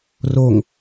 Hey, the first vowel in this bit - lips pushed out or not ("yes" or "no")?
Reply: yes